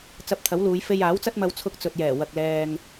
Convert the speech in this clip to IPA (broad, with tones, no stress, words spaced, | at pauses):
t͡sɐ˧p̚t̪ʰɐ˨˥wluː˨˧j fe˧jaː˨˥wt͡sɐ˥t̚mɐ˧w t͡sʰʊ˧k̚t͡sɵ˨t̚ jɛː˨˩ wɐ˨k̚lɛː˨ŋ